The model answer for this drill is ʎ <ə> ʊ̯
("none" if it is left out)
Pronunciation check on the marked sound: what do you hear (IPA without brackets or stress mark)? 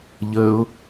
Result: ə